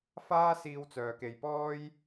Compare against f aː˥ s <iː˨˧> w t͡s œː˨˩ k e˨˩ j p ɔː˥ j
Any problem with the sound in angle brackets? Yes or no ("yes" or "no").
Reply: yes